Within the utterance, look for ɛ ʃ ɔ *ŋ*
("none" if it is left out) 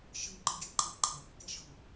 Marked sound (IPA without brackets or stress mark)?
ŋ